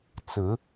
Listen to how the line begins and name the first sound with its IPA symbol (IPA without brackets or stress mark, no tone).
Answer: t͡s